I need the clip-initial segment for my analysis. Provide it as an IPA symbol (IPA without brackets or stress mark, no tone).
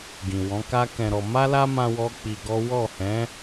ɡ